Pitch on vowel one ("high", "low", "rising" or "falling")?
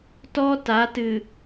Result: high